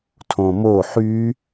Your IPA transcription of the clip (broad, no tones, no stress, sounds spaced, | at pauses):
tʰ õ m o ħ y